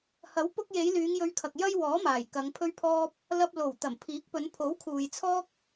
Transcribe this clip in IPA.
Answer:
hɐ˨˥wpʊ˧k̚je˨˧j lyː˨˧ŋjɵ˧ɥkʰɐ˨k̚ jɐ˥jwɔː˨˥maː˨˩j kɐ˨˧ŋpʰɵ˥ɥpʰɔː˥p̚ | lɐ˧p̚lo˨˩w t̪ɐ˨˩mpʰiː˨˥k̚pɵ˨˧n pʰo˨˥wkʰuː˨jt͡sʰɔː˥k̚

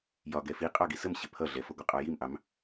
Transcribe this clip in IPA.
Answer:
jɒ ɡɛfi qʼɑɡisəmɕɪ pʰʌɮɛfʌɡʷə qʼɑjimʔɑm

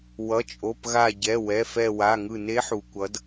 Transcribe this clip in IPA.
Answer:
wʌ˩˧˩t͡ʃʼo˩˧˩pɣa˧˩ɟɛ˩˧˩ wɛ˩˧˩fɛ˧˩wa˩˧˩ ŋɯ˧˩ne˧˥ħu˩kʷʌ˩˧d

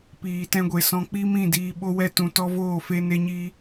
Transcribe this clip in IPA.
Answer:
piː˨tɛ̃˧ɡʷe˨ sɔ̃˧k͡pi˦mĩ˦˨ diː˧ ɓo˦wɛ˦tũ˧ tɔ˦voː˦˨fe˦ ne˦ɲi˦

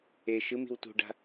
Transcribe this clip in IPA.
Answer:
e ʃɯmi̤w tṳɖa̤

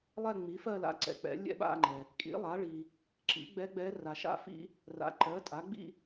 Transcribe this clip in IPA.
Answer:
lˠɛ˥˧ŋ͡mi˩˥fɜ˥˧la̰˧˥ ǀɛ̰˨ k͡pɛ̰˩˥ lʲɛ̰˥˧ɓa̰˥˧ŋ͡ǃɛ˨ | kʼḭ˩˥lˠa˩˥ɭi˨ | ǁḭ˩˥ɡ͡bɛ˧˥ɡ͡bɛ˧˥ ra˨ʃa̰˥˧ fḭ˥ | ra̰˩˥ǃɜ˩˥tʼa˩˥ ɡ͡bḭ˥˧

